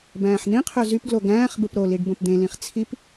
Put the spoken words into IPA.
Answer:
bæ̃ːħn̪ĩqʰø zypɡlo ɡæ̃ːχbɯp ɾoliɖ bõpd̪ẽlĩχ t͡sʰip

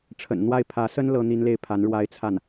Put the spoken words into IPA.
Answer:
ʈ͡ʂʰə̰˨˩nn̪wa˥˩ɪ̯ pʰä˧˥sə˥n lɤ˥ n̪i˥nle˥˩ɪ̯ pʰa˧˥nɻwa˥ɪ̯t͡sʰa˥˩n

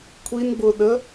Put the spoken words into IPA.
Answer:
kʷʰinɡ͡bʊɗə

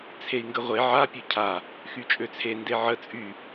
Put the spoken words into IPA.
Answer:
t͡sʰei̯ŋɡəʁʷe ʕa pʲøcʰa | xyt͡ʃʼøt͡sʰe ndeʕə t͡sʼy

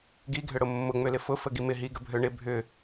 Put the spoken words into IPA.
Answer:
ɡiɡʱʏɽʊ mːʊŋ͡mʏlɪ fʊfə ɡimɪ ɦiɡə bʱøɳɪ bʱʏ

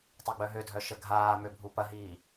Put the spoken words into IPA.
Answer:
tˤeɡ͡bœɦødʱœ ʃəɡʱaːmø bʱupɐɦiː

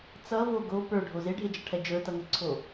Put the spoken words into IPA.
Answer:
t͡sʌvo ɡo pə˞ɖʱo zeɖʱed͡ʒʌʈʰɛ d͡ʒə˞tʌŋɛǀʰo

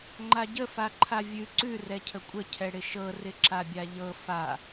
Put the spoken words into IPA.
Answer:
ŋ͡ǃaɟə faǃʰavʲʉ ǀʉ rɛcʰəkʷʼə cʰɛɽɪʃɤ rɪǁabʲaʎɤ fa

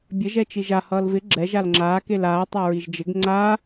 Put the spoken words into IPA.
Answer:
bʲə ʒɛt͡ʃiʒa hʌːlvɪ ɡ͡ǁɛʒ alŋ͡ǁaː kelaː tˤaɹiʒd͡ʒɪɡ ŋ͡ǀa

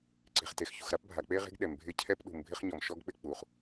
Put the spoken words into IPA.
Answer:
ǀe̤˩χte˩xçṳ˩xɾa˥p bʱa˩k͡pe˥ʁe̤˥ɡ ɗɛ˩mbʱɪ˥ cʰɛ˥pɗṳ˩mbʱɪ˥χɲɔ˩m ʃɔ˥ɡk͡pɪ˥k͡pu˩χ

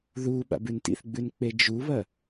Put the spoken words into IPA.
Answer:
ðu ɓa̰bʉntḭθɡ͡bʉn k͡ped͡ʒuβɐ

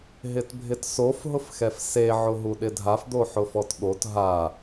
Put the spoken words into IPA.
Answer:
ɦɪtbʱɪtsof ɦʊfxɛfse ʕʊɦuɗɪdʱaf d̪oħʊfɔtɠot ɦa

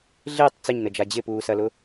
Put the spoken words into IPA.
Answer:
ɮɪːtˤ t͡səɲnəd͡ʒa d͡ʑɪpuːsɐlʊ

